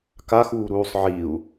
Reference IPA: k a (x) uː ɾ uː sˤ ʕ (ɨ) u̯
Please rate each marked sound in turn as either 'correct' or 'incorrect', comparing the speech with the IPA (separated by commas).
correct, incorrect